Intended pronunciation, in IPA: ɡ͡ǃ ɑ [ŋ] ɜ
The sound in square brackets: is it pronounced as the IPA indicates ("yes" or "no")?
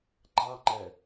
no